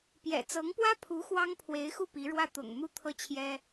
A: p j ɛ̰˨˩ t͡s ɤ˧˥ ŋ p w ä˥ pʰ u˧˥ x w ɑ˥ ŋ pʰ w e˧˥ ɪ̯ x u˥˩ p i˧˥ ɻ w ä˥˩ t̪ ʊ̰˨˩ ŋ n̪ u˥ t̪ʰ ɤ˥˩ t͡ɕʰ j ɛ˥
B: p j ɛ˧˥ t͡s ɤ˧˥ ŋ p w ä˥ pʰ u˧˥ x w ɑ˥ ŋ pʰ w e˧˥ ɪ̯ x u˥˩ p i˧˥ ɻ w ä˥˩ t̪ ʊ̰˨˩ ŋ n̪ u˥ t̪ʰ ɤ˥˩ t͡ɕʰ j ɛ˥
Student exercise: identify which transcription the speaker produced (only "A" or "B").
A